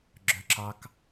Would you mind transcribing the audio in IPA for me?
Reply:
ɡ͡ǁ œ ǁ ɑ k

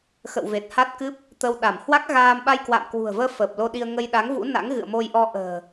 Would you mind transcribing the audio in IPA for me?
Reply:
x ə̰˧˨ w v e˨˩ t̚ h a˦˥ t̚ k ɨ˦˥ p̚ | t̪ ə˧ w ɗ a˧˩ m h w a˦˥ k̚ ɣ aː˧ m ɓ a˧ j k w a̰ː˧˨ m k w ṳ˨˩ ə̯ v əː˧ f əː˨˩ p̚ l o˧ ɗ i˧ ə̯ ŋ ə˧ j ɗ a˨˦ ŋ v ṵ˧˥ n a̰˧˥ ŋ ɣ ɨ̰˧˨ ə̯ m o˧ j ʔ ɔ˧ ʔ ə̤ː˨˩

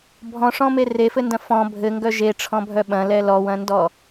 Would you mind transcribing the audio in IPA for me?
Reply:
bʱ ɔ̃ ʂ ɔ̃ m e r e f ɘ n d ɐ̃ f ɔ̃ bʱ ɘ ŋ ɡ œ ʒ e ʈ͡ʂʰ ɔ̃ bʱ œ ɓ ɐ̃ l ɛ l ɔ w ɐ̃ n d ɔ

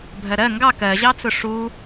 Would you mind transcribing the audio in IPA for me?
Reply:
bʱ ɜ ɾ ɜ ŋ ɡ ɑ k ɜ ʑ ɑ t͡s ʊ ʂ u

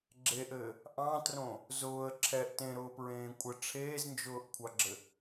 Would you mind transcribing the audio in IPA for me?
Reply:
ɡ͡ǁ e ʔ ɘː | ʔ ɑ̃ t r õ | z ʊː ə̯ ǁʰ ɛ ʔ t ẽ ɾ ʊː p ɹ ẽː kʷʼ ə ʈ͡ʂʰ eː z n d͡ʒ ʊː ʔ kʷʰ ɑ ɡ͡ǁ ɘ

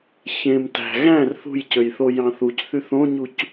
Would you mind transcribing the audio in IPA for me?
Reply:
ç ẽ m t æ̤ ɣ æ̃ r θ ṳ j c ø j θ o j ɑ̃ θ u c θ y θ õ ɲ u c

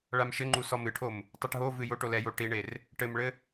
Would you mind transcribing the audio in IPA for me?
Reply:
ɭ a m ʃ ɘ ŋ͡ǃ u s ɔ m ɨ ʈʰ o m | tˤ u ʈ ɦ o v ɨ j o ʈ o l ɛ j o ʈ i ɳ e r | ʈ ɘ m ɭ ɘ

